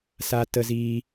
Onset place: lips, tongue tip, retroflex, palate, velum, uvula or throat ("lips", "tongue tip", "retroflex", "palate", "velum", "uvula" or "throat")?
tongue tip